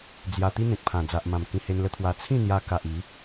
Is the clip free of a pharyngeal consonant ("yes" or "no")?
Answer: yes